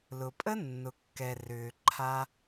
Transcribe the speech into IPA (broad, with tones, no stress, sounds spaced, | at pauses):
l ʊ˨ pʼ ə˦ nː ʊ˨ kː ɛ˨ r ʏː˨ ǃʰ a˧